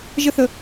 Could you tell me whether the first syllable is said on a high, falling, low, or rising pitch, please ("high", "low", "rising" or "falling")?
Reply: high